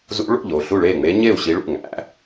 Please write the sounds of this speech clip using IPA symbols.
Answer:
z ṵ˧˥ ɭ o̰˥˩ ʎ o˥˩ ɬ u˥˩ ɭ e˥˩ ŋ͡m e˧˥ ɲ e˥˩ u̯ ɕ i˧˥ ɭ ṵ˥˩ ŋ æ̰˧˥

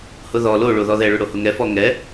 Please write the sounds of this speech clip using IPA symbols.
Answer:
h ʊ ð ɔ l o ɭ o ð ɔ ð ɛ ɭ ʊ ɽ o h ʊ ŋ ɛ f ɔ ŋ ɛ

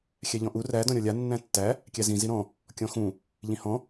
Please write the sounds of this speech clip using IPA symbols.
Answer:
xʲ æ ʎ ɔ̃ ʔ u r æ d ɔ̃ ɾʲ ɔ lʲ a nː æ̃ tː æ | kʲ æ z ĩ z i ɾ ɔ̃ | kʲ ɔ̃ x ũ | ʎ ĩ h ɔ̃

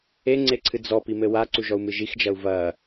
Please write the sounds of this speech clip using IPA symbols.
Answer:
e ŋ͡ǀ e ǀʰ ɨ d͡z ɔ p i m ɘ w a ǀ u ʒ ɔ u̯ m ɨ ʒ i x d͡ʒ ɐ u̯ v ɐ

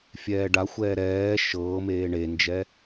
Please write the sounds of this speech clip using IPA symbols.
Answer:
fʲ ɛː ɖ a xʷ ɛː ɾ ɛː ʃ ɤː m eː ɳ e n d͡ʒ ɛ

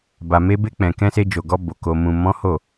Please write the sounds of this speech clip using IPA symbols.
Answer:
b a˨ m e˧ b e˧ k͡p ɛ̃˨ k ɛ̃˧ s e˧ d͡ʒ o˨ ɡ ɔ˧ b o˨ k o˨ m ũ˨ m ɔ̃˨˦ h o˦˨

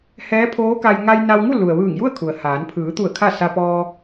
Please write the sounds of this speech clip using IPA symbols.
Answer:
h ɛː˧˥ pʰ oː˧˥ k a˧ j ŋ a˧ j n a˧ w ŋ u˥˨ l u˩ ə̯ ʋ ɯː˧˩ ŋ j u˥˨ ə̯ kʰ u˩ ə̯ h aː˩˧ n pʰ ɯː˩˧ t̪ u˧˩ ə̯ kʰ a˥˨ s a˧ p ɔː˧

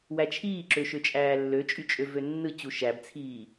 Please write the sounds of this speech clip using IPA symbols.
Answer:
w æ t͡ʃʰ iː ǁ ø ʃ ø t͡ʃʼ æː lː ø t͡ʃʼ y t͡ʃʼ ø v ø nː ɯ t͡ɕ u ʃ æ b t͡sʰ iː

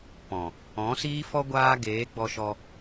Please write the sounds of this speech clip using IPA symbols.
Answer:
p ɔ̃˨ | ɔ̃˨˦ s iː˦ f ɔ˦ ɡʷ aː˦ ɡ eː˨˦ ɡ͡b ɔ˧ ʃ ɔ˧

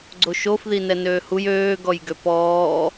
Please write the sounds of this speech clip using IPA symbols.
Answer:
ɡ͡ǀ o ʃ o f ð i n ɛ n øː h u j øː ɡ ɔ j ɡ ø p ɔː

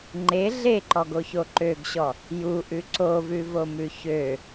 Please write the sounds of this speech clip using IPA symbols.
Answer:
ŋ͡ǃ e ɮ e ǃ ɔ ɡ o ç o ǃ ø ɡ ɕ ɔ | j u ʔ ʉ ǀ o v ʉ v o m ʉ ç ø

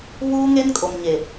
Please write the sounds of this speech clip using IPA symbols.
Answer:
β uː˦ ŋ e˦ n kʼ o˨ m ɲ e˨

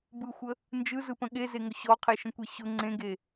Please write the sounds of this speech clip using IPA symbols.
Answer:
b ɯ xʷ ə | n d͡ʒ ɯ z ɯ p ə̃ ɠ e z e ŋ ʊ ɕ ɔ qʰ e ʃ ə̃ kʷ e ɕ ʊ ŋ͡ǀ ẽ ɡ e

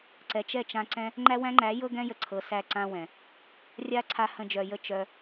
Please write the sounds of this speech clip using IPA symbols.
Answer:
ǀ ɛ˨ t͡ʃ ɛ˦˨ t͡ʃ ã˧ ǀ ɛ̃˦ | ŋ͡ǃ æ˦ w æ̃˦ ŋ͡ǃ æ˨˦ j ɤ˦ ɡ ɛ̃˦ j ə˨ ǀʰ ɤ˨ s æ˧ ǀ ã˦ w ɛ̃˨ | rʲ a˦ ǀʰ a˧ h ə̃˧ d͡ʒ œ˨ j ə˦˨ t͡ʃ œ˧

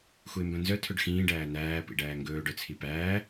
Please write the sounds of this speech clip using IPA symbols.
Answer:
x u ɪ̯ m b œ̃ n z œ tʰ ɵ ɖ x ĩː ɖ æː n̪ æː p ḭ ɖ æː ŋ ɡ ɵː ɖ œ t͡sʰ i p æː

